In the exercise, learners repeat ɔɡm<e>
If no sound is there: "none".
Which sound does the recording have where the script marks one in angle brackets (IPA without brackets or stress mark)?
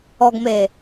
e